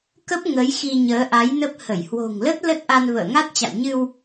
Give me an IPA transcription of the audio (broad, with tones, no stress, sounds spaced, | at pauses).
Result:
k ə˦˥ p̚ ŋ ə˨˦ j x i˧ ɲ əː˨˦ ʔ a˨˦ j n ə˦˥ p̚ h ə˧˩ j h w o̤˨˩ ŋ l ə˦˥ t̚ l ə˦˥ t̚ ʔ a˧ n v ə̰ː˧˨ ŋ a˦˥ t̚ t͡ɕ a̰˧˨ w ɲ ɨ˧ w